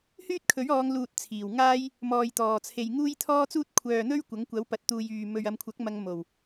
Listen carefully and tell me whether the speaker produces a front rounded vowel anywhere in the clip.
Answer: yes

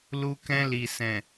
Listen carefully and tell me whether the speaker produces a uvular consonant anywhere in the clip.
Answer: no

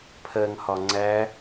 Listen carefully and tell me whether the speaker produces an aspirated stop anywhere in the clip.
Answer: yes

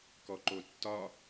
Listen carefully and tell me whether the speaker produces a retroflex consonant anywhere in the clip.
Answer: no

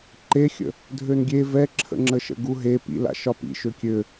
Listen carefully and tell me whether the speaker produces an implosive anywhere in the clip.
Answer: no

